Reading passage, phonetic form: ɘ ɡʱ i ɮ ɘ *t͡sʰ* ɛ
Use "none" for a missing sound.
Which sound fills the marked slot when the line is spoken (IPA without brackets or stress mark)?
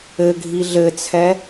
t͡sʰ